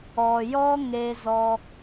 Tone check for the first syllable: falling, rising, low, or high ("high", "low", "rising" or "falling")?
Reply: low